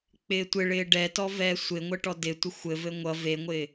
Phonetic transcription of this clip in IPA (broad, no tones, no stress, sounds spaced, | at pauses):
k͡p ɪː tʷ ɪ ɭ ɪː ɖ ɛ t ɔ v ɛː sʷ ɪ ŋʷ ə ʈ ɔ d ɪ tʷ ɪ xʷ ɘ v ɘ ŋʷ ʌ v e ŋʷ ɪː